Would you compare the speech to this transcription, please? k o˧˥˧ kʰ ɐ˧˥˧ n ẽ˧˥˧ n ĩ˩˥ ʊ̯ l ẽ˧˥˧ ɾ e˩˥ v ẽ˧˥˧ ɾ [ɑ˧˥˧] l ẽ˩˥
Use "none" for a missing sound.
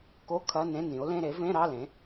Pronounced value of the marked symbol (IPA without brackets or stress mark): ɑ˧˥˧